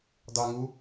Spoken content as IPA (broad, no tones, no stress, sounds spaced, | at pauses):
dˤ u ə̯ ŋ u